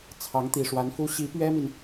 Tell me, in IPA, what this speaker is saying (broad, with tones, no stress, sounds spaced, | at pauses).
t͡sʰ ɑ˧˥ ŋ t̪ i˨˩ ʂ w a˧˥ n f u˥ ɕ i˧˥ p ɥ ɛ˥ m i˨ n